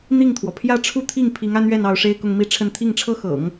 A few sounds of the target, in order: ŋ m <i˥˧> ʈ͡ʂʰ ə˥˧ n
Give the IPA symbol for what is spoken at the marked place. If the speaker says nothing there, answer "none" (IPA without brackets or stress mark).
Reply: i˥˧